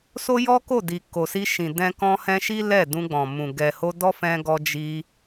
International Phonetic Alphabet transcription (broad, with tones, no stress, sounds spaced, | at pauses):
s o˦ j ɔ˦ k o˦˨ d i˨ k o˨ s i˧ ʃ ĩ˨ d ɛ̃˧ k ɔ̃˧ h ɛ̃˧ ʃ i˦ l ɛ˦˨ d ũ˧ ɡ͡b ɔ̃˨ m ũ˨ ɡ ɛ˨ h o˧ d ɔ˦ f ɛ̃˧ ɡ ɔ˧ d͡ʒ i˧